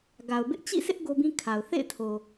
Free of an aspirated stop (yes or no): no